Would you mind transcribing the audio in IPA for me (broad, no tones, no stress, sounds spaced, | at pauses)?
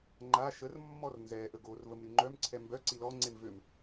ŋ͡ǃ a ʃ ə r mː ɔ r n z ɛ ʔ ə ɡ o r v ə m ɾ y ŋ͡ǃ œ m ǀʰ ɛ m b œ ǀ i l ɔ ŋ͡ǀ e m v ø m